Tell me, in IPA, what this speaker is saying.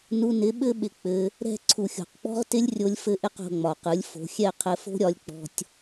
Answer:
nu˧nɪ˨˦ ɓɘ˦ ɓɪ˧k͡pɘ˧ | ɾɛ̤˦˨ ǀʰu˨xʲo̤˨qk͡pɔ̤˦ʁ tɪ˦lʲrʲo˧lʲfɘ˧ʔɪ˧q o̤˧ŋ͡mɒ˨qɯ˨˦lʲfo̤˧ xʲɛ˦˨qʰɘ˧fo̤˦ɾʲɒ˧lʲ k͡pɔ̤˧tʲ

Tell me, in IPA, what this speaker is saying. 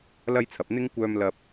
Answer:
lɐ˥jt͡sʰɐ˨p̚ n̪ɪ˥ŋ kʷœː˧m lɐ˧p̚

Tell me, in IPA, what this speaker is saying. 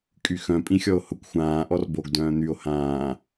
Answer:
kʼyxœ̃ pʼĩxʲɔo̯hʊkʷ xʷãː ʔɔrboɡ dœ̃ːn̪yo̯ hãː

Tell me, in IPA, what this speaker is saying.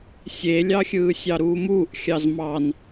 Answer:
sʲelʲɑxʲɯː sʲɑɾuːmuːʔ xʲɑzmɑn

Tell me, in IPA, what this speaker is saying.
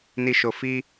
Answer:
ni˦ʃo˦ fi˦

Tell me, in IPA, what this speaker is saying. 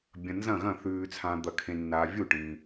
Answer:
bʲɐ̃˨nzɐ̃˥˩ɣɐ̃˥˩ θʉː˨t͡sʰã˨d̪ɐ˨ kʰẽ˨nːaː˨ vʲu˥˩ʈĩ˨

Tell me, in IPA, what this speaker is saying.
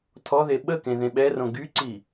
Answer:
tʰɔðe ɓəkẽ ðẽɓɛrõ ɡyǀi

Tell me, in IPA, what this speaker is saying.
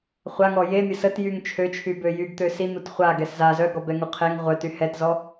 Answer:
χʷaŋɔ je mʲəsətjyŋ t͡ʃʰøt͡ʃʰybø jyɡ t̪øsin̪ut χʷa ɡɛsza zœɡɔ bɛŋuqʰeŋ ʁʷœty hɛtzɔ

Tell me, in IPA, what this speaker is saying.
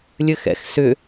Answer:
lʲɘxɛ̰x sʏ

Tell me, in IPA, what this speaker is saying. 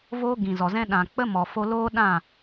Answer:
voː˦ɡĩ˨zɔ˨zɛ̃˦ ɗã˨ k͡pə˦mɔ˨ fo˧loː˦ɗã˦˨

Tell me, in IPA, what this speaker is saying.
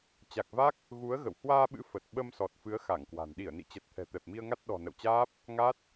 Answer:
t͡ɕa˨˩k̚va˦˥k̚ | ɣu˨˦ə̯ ɣə̰˧˨w hwaː˧ɓɨ̰˧˥ fə˨˩t̚ ɓə˧m sɔ˨˩t̚fɨ˨˦ə̯ xa˧˩ŋkwa̤˨˩n ɗi˧˩ə̯nḭ˧˨t͡ɕə˨˩t̚ t̪ʰɛ̤˨˩t̪ɛ˨˩p̚mi˧ə̯ŋa˦˥t̚ ɗɔ̤˨˩ nə̰˧˨wt͡ɕaː˦˥p̚ | ŋa˦˥t̚

